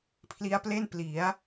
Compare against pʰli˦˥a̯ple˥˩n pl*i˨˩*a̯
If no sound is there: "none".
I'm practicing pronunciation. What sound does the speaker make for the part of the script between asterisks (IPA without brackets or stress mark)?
i˩˦